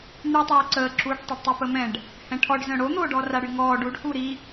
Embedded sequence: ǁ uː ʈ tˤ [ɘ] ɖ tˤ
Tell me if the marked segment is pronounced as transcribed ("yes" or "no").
no